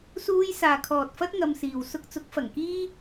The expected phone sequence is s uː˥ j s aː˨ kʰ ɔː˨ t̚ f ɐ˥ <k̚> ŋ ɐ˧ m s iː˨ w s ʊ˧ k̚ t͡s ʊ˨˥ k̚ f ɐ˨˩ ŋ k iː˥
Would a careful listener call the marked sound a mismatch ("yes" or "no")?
yes